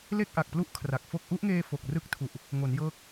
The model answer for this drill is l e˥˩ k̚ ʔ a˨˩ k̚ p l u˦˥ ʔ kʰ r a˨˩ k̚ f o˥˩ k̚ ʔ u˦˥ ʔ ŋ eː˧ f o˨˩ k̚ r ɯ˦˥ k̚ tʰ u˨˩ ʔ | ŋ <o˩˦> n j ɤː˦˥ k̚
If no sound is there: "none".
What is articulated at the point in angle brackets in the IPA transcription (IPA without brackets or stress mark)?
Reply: o˩˦